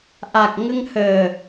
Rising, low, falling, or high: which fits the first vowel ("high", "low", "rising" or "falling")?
low